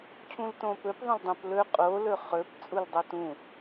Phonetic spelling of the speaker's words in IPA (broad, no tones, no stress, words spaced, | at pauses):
cʰũltõpɵp ðˤõldˤõplɵ qʼo lɵχɵp t͡sʼuldˤotũ